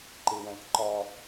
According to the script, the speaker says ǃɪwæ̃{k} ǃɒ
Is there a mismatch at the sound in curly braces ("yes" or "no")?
no